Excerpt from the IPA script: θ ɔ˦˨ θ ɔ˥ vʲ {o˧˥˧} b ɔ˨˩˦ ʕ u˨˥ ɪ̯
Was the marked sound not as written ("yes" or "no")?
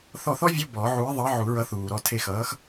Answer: no